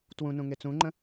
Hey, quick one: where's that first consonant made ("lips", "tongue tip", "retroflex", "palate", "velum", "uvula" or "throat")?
tongue tip